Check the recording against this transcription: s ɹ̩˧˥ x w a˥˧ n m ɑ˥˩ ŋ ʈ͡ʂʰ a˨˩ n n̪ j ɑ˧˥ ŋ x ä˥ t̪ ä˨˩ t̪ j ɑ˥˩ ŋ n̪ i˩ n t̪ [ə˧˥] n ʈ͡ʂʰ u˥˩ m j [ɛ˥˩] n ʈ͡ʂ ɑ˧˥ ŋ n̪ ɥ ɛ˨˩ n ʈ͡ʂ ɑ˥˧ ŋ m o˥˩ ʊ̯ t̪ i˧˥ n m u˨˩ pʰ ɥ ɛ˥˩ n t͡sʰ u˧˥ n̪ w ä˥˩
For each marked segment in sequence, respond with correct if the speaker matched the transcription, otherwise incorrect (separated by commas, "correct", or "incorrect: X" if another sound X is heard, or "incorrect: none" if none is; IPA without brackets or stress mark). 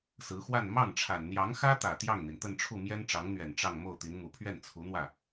incorrect: ə˥˧, incorrect: ɛ˥